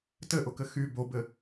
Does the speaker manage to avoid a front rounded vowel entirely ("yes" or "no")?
no